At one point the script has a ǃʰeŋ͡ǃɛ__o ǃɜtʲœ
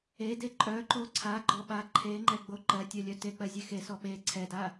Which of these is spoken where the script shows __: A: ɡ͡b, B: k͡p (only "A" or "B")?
A